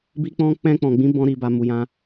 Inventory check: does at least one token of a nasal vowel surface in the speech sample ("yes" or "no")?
yes